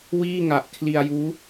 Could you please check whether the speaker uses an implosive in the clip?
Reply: no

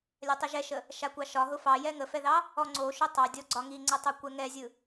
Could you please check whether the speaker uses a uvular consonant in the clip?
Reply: no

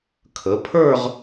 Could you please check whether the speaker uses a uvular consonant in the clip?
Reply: yes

